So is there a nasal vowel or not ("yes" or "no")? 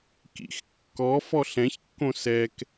yes